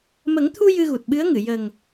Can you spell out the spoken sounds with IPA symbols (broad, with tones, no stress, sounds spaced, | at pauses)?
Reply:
m ə˨˩˦ ŋ t̪ʰ u˧ j ɨ˧ ɣ u˨˩ t̚ ɓ ɨ˧˥ ə̯ ŋ ɨ˨˩˨ j ə˨˩ ŋ